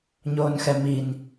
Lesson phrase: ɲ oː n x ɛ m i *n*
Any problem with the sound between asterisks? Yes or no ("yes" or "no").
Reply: no